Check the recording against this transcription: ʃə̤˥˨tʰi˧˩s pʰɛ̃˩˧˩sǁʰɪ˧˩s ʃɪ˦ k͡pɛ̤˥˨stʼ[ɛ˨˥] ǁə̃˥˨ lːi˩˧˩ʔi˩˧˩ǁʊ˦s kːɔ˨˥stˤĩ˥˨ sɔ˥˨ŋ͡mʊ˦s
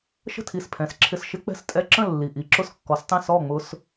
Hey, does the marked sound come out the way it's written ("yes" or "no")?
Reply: no